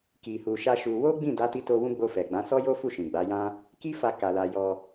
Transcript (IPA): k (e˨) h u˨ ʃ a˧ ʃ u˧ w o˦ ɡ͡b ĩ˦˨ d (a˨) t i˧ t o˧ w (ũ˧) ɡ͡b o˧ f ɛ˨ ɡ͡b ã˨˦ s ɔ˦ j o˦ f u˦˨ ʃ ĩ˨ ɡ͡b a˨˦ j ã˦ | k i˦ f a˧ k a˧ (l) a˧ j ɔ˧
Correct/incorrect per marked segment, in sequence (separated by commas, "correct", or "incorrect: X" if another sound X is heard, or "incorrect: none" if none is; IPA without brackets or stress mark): incorrect: i˨, incorrect: a˨˦, correct, correct